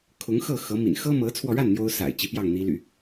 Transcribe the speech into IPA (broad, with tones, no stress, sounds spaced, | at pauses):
kʰ ʊ˧˥ ŋ x ɤ˥˩ x ɤ˧˥ m ḭ˨˩ n x ɤ˥ m ɤ˧˥ t͡sʰ w ɔ˧ ɻ a˥˩ n n̪ j o˥ ʊ̯ s a̰˨˩ ɪ̯ t͡ɕ i˧˥ p j ɑ˥˩ ŋ n̪ i˧˥ l y̰˨˩˦